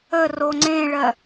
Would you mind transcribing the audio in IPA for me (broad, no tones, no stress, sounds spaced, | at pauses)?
ə r o ŋ͡ǀ ẽ ɭ ɜ